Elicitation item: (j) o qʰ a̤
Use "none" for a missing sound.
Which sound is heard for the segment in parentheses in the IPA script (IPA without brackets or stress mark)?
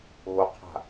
ɣ